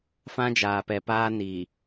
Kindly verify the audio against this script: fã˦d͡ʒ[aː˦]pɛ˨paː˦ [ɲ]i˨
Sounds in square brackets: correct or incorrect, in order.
incorrect, incorrect

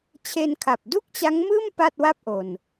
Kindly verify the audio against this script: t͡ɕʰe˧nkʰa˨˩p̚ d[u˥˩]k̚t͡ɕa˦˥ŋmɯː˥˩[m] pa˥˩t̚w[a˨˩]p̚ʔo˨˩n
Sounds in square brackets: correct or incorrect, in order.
correct, correct, incorrect

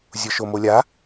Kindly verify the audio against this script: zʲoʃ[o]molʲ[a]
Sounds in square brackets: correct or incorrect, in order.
correct, correct

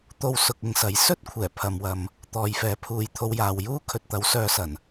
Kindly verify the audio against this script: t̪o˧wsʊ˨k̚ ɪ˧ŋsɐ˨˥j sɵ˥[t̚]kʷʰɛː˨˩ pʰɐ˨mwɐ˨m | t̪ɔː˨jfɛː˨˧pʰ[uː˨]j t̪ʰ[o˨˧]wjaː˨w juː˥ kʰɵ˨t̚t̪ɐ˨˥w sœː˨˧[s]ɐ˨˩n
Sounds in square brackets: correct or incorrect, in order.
correct, correct, incorrect, correct

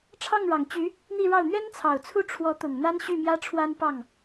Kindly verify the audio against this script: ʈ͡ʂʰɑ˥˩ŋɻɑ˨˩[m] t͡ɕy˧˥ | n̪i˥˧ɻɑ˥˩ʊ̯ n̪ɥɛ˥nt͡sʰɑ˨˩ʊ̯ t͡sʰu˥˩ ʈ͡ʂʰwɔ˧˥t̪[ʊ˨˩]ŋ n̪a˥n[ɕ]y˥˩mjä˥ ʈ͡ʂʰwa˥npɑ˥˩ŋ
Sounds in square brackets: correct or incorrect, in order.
incorrect, correct, correct

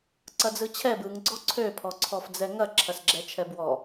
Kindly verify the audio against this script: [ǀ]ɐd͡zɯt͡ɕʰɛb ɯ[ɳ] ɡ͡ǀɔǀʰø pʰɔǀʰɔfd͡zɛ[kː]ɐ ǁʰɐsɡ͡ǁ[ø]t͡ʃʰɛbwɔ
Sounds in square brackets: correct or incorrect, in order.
correct, incorrect, incorrect, incorrect

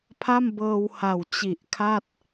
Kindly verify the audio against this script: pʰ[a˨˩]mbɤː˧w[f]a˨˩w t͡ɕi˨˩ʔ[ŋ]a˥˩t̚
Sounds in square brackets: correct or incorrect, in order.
incorrect, incorrect, incorrect

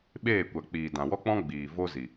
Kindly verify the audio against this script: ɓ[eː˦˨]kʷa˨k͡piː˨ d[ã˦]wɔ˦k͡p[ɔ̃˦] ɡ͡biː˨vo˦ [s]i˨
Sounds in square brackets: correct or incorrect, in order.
correct, incorrect, correct, incorrect

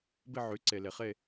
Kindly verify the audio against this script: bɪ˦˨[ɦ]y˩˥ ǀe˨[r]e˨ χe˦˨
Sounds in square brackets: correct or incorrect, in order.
incorrect, incorrect

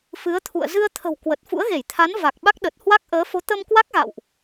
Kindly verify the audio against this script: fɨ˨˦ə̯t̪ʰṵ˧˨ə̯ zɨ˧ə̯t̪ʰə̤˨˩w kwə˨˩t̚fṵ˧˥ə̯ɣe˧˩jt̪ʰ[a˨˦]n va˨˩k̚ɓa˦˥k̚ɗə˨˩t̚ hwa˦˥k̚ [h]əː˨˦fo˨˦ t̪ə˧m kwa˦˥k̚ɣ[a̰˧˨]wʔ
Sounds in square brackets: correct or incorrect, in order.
correct, incorrect, correct

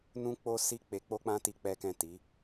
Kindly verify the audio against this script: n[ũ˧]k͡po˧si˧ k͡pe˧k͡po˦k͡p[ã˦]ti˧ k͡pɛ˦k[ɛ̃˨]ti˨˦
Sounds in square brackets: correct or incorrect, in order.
correct, correct, incorrect

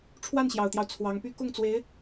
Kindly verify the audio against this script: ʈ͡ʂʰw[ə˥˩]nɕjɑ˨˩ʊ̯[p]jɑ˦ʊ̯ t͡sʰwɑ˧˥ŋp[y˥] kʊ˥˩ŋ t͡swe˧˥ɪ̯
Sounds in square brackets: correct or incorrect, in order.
incorrect, incorrect, correct

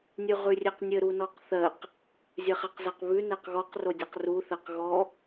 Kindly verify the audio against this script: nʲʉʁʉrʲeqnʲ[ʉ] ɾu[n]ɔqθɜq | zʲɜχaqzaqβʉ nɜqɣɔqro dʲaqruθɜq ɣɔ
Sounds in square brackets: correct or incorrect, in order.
incorrect, correct

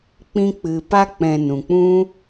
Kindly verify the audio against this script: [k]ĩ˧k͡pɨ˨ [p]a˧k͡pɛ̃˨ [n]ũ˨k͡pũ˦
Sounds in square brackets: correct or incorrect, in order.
incorrect, correct, correct

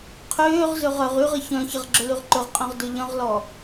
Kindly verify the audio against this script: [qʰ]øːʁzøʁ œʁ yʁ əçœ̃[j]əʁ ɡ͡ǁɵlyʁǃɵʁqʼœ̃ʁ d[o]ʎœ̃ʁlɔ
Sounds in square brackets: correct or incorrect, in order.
correct, incorrect, incorrect

